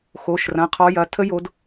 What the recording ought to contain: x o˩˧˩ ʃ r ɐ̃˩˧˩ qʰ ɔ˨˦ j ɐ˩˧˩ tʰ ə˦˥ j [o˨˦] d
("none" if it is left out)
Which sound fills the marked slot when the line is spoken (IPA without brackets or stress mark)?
o˨˦